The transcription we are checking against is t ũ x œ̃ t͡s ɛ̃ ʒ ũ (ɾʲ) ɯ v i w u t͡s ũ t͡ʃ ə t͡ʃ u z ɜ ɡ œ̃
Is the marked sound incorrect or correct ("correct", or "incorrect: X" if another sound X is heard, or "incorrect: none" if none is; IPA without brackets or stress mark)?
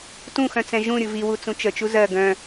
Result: correct